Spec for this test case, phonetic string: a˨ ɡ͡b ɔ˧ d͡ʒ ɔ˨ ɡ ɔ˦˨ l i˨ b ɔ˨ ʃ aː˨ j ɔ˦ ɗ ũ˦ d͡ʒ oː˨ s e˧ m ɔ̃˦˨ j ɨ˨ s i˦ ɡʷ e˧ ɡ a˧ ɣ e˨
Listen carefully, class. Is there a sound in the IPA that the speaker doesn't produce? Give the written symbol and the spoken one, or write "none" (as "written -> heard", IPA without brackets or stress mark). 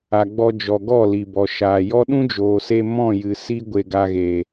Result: none